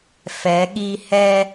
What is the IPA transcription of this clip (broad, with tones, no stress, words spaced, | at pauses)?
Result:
fɛ˩˧ɠi˧ hɛ˧